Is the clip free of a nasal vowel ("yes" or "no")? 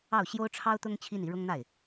yes